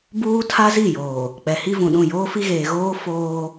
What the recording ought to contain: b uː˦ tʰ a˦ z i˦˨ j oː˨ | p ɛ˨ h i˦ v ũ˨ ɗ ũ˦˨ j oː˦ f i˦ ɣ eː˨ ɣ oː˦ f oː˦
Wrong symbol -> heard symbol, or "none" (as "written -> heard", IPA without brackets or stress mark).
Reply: p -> k͡p